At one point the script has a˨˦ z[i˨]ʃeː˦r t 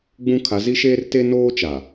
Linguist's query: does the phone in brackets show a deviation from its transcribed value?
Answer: yes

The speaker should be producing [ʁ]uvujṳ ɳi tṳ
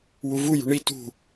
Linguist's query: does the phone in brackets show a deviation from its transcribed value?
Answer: yes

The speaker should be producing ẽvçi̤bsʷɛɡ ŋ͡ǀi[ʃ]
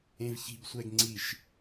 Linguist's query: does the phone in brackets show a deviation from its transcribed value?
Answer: no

